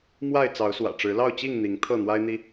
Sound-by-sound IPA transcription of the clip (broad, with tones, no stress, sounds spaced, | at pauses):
m w a˥˨ ɪ̯ t͡s ɑ˨˦ ʊ̯ s w ä̰˨˩ ʈ͡ʂ ɻ̩˨˦ l ɑ˥˨ ʊ̯ t͡ɕ i˥˨ ŋ n̪ i˨˦ ŋ t̪ʰ ɤ˥˨ n̪ w a˦ ɪ̯ n̪ i˦